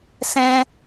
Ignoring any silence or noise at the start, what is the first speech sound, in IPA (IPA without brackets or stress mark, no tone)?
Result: s